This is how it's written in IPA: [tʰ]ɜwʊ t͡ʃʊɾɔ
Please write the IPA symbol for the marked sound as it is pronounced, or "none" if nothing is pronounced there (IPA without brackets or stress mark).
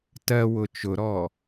t